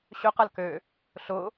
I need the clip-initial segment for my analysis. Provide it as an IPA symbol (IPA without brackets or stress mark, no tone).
ɕ